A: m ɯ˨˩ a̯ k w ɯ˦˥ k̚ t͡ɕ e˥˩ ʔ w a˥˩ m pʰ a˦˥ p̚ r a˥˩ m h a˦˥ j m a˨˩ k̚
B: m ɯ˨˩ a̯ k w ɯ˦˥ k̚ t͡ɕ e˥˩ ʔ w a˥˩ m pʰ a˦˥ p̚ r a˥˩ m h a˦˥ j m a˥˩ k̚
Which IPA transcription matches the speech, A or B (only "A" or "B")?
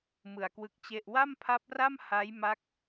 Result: B